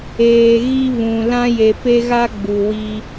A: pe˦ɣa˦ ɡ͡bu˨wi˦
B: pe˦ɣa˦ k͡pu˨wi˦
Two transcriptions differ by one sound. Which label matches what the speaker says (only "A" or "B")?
A